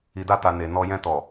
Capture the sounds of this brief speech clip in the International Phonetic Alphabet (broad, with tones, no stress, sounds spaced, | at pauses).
i˨ d a˧ t a˨ n e˨ n ɔ˧ j ɛ̃˧ t ɔ˨